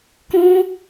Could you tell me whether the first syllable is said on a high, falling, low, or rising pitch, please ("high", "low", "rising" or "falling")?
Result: high